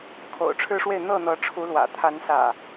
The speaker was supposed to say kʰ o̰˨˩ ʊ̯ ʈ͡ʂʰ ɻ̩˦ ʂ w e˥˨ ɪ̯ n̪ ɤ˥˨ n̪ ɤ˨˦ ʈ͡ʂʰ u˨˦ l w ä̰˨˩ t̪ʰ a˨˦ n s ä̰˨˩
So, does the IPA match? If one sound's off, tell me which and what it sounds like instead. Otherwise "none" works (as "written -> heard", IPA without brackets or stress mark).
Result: none